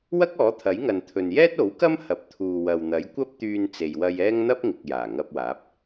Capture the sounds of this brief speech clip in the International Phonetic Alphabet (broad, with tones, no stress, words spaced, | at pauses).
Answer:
wɐ˥k̚ɔː˨˥t̪ʰɐ˨˥jŋɐ˨n t̪ʰɵ˨njɛː˥t̚o˨˥wkɐ˥m hɐ˨p̚t̪ʰuː˨wɐ˨wn̪ɐ˨˥j kʷɐ˥p̚t̪yː˧n t͡se˨jwɐ˧j ɛː˥ŋn̪ɐ˥p̚ŋɪ˨k̚ jaː˨˩ŋɐ˧p̚waː˨˥p̚